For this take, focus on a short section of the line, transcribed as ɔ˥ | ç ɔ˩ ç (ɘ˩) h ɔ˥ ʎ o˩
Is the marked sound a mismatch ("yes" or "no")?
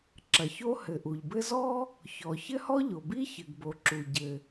yes